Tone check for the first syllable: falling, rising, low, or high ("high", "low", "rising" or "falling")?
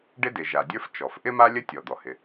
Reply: high